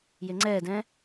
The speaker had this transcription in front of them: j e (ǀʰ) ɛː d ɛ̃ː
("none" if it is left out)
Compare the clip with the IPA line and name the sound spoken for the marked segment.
ŋ͡ǀ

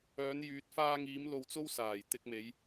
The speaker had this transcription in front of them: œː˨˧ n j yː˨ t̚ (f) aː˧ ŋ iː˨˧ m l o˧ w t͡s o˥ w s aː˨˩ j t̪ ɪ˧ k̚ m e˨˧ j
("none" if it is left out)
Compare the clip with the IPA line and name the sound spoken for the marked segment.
f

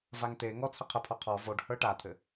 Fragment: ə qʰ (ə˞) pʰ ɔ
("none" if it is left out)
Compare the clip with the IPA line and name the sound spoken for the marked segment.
ə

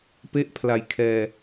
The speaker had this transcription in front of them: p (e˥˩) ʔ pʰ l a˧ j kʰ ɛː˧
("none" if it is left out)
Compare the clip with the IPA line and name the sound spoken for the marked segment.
e˥˩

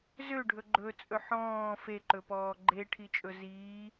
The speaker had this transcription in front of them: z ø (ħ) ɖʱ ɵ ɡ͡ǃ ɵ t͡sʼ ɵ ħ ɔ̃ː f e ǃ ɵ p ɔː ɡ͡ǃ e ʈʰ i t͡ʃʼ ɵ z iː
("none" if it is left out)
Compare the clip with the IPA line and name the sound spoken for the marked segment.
none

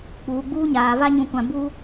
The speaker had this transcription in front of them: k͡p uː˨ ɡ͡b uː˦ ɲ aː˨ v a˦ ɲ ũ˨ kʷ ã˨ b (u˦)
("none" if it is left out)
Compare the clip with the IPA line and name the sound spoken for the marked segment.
uː˦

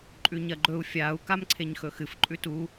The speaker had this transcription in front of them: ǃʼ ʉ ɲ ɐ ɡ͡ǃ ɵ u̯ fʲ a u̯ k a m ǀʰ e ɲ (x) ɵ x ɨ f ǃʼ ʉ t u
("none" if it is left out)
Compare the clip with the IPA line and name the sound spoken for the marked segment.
x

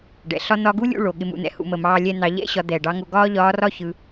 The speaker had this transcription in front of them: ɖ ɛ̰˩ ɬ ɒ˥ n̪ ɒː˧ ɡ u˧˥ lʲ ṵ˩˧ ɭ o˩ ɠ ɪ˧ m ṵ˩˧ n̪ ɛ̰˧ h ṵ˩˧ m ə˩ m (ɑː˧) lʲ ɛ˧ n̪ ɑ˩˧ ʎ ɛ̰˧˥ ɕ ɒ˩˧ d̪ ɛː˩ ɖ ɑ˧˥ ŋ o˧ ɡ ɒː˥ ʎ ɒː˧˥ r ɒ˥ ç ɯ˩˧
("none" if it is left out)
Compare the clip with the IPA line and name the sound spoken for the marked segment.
ɑː˧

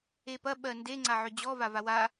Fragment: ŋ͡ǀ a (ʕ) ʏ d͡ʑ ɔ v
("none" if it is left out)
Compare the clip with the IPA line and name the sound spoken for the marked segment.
ʕ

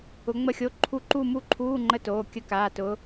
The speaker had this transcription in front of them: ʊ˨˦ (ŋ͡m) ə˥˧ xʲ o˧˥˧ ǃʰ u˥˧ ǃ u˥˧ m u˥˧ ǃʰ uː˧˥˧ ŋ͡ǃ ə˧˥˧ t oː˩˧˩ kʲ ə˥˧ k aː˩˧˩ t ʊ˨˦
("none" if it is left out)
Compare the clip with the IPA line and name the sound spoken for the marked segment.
ŋ͡m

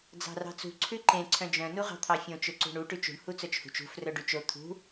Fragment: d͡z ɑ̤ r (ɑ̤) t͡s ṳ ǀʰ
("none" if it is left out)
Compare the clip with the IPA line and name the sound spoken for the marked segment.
ɑ̤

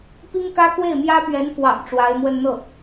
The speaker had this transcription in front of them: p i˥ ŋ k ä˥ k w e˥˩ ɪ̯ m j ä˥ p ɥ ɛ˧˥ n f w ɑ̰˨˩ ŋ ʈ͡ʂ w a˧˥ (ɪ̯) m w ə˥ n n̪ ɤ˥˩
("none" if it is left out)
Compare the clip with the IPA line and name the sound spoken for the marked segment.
ɪ̯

